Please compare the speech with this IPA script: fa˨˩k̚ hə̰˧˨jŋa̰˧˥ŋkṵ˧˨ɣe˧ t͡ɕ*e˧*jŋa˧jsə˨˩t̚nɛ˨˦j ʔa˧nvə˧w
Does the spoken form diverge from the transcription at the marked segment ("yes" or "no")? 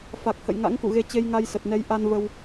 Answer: no